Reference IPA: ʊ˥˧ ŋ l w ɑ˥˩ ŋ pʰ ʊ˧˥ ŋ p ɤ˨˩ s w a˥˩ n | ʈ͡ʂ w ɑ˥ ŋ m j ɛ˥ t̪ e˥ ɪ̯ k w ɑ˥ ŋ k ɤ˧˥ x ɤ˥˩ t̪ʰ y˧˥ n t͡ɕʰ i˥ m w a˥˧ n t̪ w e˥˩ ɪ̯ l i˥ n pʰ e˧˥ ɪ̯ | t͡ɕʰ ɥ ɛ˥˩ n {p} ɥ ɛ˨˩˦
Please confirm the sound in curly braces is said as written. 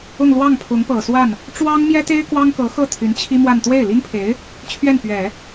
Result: yes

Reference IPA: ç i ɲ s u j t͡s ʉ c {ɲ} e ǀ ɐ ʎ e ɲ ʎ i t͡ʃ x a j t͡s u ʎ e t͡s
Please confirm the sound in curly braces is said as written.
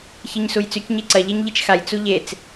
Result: yes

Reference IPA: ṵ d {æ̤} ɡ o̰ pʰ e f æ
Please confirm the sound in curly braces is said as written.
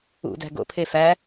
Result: yes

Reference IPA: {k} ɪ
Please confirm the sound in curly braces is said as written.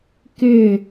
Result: yes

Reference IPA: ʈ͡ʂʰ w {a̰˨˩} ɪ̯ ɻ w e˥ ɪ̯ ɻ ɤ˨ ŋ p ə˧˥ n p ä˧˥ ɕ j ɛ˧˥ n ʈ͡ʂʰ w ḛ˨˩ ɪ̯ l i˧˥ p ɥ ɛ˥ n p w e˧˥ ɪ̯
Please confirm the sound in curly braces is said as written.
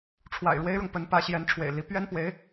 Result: yes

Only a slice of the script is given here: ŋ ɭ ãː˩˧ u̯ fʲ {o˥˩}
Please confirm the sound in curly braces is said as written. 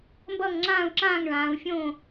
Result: no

